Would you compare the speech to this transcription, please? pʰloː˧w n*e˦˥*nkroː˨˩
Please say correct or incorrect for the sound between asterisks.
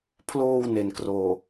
incorrect